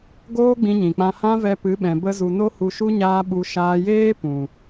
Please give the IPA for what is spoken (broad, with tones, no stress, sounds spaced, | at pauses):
ɡ oː˦ ɡ͡b ĩ˧ ɲ ĩ˨ k͡p ã˧ h ã˦ v ɛ˧ p ɨ˨˦ ɓ ɛ̃˨ b ə˦ z u˧ n o˦ h u˧ ʃ u˦ ɲ aː˦ ɓ u˧ ʃ aː˧ j eː˦ p ũ˨